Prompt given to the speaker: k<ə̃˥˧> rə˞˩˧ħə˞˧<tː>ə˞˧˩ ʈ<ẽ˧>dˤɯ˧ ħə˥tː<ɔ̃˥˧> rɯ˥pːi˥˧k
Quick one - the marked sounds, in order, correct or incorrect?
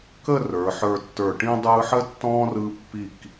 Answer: incorrect: ə˥˧, correct, incorrect: ĩ˧, incorrect: ɔ̃˥

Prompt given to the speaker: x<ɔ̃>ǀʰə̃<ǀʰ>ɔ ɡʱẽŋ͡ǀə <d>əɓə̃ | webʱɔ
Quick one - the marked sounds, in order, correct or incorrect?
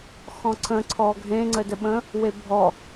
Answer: correct, correct, correct

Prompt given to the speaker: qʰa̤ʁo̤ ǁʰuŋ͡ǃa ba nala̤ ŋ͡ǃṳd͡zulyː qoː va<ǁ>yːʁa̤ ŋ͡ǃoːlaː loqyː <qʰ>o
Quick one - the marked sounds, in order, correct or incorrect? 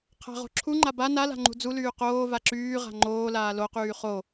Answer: correct, incorrect: χ

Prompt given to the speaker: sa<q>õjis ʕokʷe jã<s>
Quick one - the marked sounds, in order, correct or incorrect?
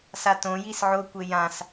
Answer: incorrect: t, correct

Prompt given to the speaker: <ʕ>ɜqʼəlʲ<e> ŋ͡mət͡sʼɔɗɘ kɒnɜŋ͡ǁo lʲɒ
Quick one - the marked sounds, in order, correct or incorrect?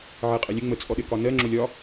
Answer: correct, incorrect: ɘ

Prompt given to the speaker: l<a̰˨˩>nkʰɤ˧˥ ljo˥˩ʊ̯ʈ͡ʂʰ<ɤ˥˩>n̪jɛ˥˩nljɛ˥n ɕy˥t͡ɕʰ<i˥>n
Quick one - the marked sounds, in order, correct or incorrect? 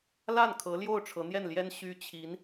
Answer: incorrect: a˥˩, incorrect: ɤ˧˥, incorrect: i˧˥

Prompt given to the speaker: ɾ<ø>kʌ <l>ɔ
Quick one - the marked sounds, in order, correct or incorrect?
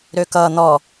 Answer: correct, incorrect: n̪

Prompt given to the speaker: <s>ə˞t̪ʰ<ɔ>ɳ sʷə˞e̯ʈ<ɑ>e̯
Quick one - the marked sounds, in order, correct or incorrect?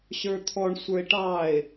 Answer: incorrect: ɕ, correct, correct

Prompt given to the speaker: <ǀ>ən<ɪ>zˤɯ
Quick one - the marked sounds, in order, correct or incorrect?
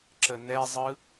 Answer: incorrect: ǁ, incorrect: ɛ

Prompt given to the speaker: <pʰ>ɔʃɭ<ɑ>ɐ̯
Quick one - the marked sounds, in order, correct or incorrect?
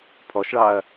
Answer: correct, correct

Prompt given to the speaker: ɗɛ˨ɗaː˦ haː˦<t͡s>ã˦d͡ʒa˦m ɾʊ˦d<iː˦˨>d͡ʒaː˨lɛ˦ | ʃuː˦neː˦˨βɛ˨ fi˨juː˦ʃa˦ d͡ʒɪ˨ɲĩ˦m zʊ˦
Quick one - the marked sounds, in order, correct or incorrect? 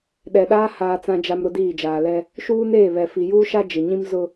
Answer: correct, correct

